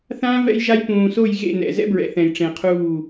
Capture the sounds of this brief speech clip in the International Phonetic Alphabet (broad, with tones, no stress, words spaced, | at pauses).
θãː˦ vɛ̰˦jʒa˦j pũː˨so˦˨j ɣḛ˦˨nɛ̰˨zɛ̰˦bɹɛ̰˨ θɛ̃˨jʈ͡ʂẽ˨qʰuː˦˨